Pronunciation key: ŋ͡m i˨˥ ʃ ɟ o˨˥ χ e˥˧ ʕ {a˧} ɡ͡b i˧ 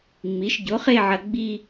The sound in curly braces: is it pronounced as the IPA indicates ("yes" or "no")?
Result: no